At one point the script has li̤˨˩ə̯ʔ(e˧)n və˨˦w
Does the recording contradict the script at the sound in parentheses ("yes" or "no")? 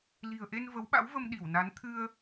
no